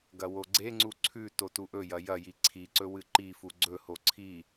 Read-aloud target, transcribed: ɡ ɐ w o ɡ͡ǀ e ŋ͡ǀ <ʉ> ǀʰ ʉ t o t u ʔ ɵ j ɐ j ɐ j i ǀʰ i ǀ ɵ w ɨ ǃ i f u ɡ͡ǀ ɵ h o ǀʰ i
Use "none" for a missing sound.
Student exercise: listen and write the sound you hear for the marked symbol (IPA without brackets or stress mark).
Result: u